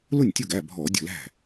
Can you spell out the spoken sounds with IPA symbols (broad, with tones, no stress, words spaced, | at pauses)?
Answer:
lʊ˥˩nʲtʲʊ˥˩ɡæ˩˧˩ bʱɔ˧˩˧ dʲə̤˥˩læ̤˥˩